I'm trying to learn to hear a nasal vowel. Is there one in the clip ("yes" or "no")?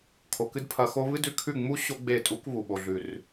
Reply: no